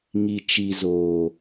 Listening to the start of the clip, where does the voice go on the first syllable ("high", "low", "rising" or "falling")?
low